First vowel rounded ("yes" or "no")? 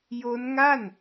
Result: yes